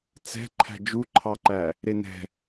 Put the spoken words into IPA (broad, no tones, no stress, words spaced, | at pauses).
t͡sɛ̤ ǃʰæ̤d͡ʒuǃʰɑǃæ | ɾenɛ̤